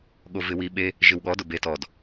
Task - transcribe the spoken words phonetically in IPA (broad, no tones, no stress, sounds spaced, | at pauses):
ɠ o v ɪ w i ɓ e | ʒ ɪ w ɠ ɔ d ʊ b e t ɔ d